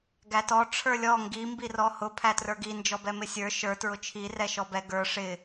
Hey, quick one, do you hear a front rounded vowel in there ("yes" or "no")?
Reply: no